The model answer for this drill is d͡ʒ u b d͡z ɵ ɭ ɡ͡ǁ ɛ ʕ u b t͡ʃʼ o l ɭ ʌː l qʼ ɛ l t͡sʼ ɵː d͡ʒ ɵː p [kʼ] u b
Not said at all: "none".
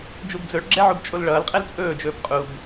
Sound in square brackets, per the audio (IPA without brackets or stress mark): qʼ